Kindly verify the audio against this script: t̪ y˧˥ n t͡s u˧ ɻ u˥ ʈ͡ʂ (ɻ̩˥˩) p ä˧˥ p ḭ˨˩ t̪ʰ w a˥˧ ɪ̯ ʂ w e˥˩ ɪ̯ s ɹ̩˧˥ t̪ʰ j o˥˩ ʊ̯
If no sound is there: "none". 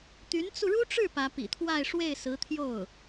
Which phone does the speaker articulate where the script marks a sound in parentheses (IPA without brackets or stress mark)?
ɻ̩˥˩